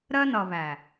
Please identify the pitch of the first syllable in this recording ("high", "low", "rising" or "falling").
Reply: high